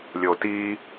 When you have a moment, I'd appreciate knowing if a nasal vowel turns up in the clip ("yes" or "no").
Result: no